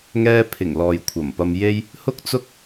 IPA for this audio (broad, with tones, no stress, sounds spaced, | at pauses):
ŋ ɛː˥ pʰ ɪ˨˩ ŋ l ɔː˨ j kʷʰ ɐ˨˩ m p ɐ˧ m j e˥ j | h ʊ˥ k̚ t͡s ʊ˥ k̚